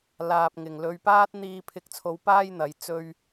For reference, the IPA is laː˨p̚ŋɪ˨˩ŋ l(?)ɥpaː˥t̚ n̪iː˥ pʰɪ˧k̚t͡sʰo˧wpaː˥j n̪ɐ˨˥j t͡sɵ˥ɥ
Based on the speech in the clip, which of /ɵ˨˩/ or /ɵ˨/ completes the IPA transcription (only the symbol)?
ɵ˨